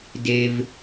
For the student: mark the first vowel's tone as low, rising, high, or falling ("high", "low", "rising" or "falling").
low